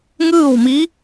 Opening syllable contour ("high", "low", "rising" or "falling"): falling